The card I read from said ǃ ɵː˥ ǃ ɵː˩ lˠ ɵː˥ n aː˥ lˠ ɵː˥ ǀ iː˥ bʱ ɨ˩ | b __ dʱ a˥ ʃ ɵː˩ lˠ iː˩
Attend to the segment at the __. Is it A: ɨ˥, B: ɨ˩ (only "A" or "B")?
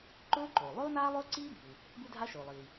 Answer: A